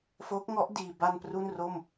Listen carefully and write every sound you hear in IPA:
f o˦˥ k̚ ŋ ɔ˦˥ ʔ d iː˧ b a˧ n p r u˥˩ n r o˥˩ m

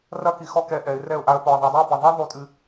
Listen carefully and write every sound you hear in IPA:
r ɐ˦ k i˨ x ɔ˦ k ɛ˨˦ ʔ ɛ˨˦ ɪ̯ r ɛ˥˩ ʊ̯ ʔ a˦ ə̯ p ɔ˨ ə̯ ðˤ o˨˦ dˤ i˦ ə̯ b ɛ˨ ðˤ ɛ˦ ðˤ u˥˩ tʼ ɨ˦

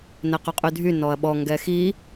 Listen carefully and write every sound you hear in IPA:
n ɛ q y qʼ y dʱ y n ɔ ɐ̯ ɓ ɔ ŋ ɡ ɛ x i

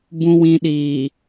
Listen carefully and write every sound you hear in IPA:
b ũ˨ w ĩ˨ ɗ iː˨

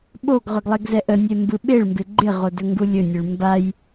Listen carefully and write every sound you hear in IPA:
ɓ o ɡ ʁ ɵ ɡ lˠ e ɡ z ɛ ʔ ə nʲ e m b ɯ ɓ e ɭ m b ɪ ɡ͡ǃ ɪ ʁ o d ɵ ŋ ɡ u lʲ ɵ nʲ ɯ ɭ m b a j

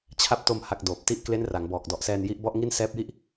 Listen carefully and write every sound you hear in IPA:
t͡ɕʰ a˦˥ p̚ t o˧ m h a˨˩ k̚ d oː˨˩ p̚ t i˥˩ ʔ k l e˦˥ n r a˩˦ ŋ b ɔː˨˩ k̚ d ɔ˨˩ ʔ s ɛː˧ n j i˦˥ ʔ b ɔ˥˩ ʔ ŋ i˥˩ n s ɛː˦˥ p̚ j i˥˩ ʔ

